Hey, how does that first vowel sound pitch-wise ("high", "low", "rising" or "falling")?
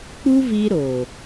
high